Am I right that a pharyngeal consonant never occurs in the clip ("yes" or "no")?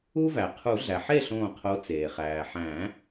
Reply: no